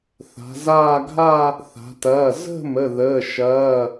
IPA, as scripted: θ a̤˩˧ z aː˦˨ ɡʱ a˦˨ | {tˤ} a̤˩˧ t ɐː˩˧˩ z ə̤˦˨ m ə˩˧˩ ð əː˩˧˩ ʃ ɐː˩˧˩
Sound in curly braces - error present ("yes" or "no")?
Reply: yes